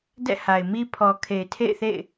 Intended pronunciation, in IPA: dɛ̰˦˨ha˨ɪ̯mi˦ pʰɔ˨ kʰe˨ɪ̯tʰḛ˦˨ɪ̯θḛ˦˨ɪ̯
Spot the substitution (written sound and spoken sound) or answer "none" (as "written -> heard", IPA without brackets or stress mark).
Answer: none